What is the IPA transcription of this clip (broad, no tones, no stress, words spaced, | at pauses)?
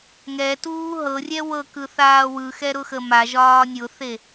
ŋɛtuː ɦɤrʲɛ wɤkɯ θaːwɯxɛ ɾʊxəmaʒɒː nʲʊθe